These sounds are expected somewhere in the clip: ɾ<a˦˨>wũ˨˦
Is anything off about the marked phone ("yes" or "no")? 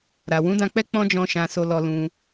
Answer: yes